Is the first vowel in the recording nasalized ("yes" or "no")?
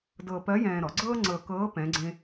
no